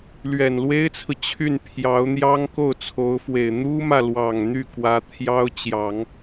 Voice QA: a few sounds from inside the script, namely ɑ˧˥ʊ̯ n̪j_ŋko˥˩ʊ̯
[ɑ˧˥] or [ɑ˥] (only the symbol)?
ɑ˥